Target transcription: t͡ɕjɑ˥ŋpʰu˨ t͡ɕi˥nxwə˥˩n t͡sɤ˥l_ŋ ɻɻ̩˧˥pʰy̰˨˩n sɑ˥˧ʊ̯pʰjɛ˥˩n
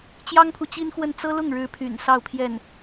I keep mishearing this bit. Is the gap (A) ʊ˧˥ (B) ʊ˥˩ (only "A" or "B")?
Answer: B